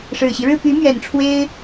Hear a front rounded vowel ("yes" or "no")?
yes